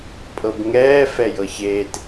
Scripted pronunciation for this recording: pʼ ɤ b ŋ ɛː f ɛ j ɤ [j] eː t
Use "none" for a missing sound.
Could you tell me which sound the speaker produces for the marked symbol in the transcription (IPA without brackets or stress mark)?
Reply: ç